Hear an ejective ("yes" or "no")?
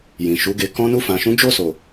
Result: no